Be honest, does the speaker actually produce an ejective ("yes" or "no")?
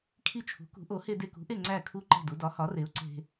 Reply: no